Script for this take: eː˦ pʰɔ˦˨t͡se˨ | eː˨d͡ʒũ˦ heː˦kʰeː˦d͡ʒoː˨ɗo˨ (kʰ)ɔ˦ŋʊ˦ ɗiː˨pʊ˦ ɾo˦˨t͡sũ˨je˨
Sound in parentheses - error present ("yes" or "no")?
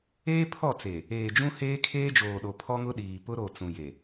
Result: yes